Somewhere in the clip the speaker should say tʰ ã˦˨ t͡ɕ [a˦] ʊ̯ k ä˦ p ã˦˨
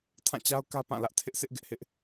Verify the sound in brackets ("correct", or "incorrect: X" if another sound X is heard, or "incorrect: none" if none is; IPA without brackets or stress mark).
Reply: correct